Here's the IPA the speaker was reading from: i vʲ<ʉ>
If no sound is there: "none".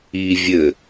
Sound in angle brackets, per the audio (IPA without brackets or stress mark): ɘ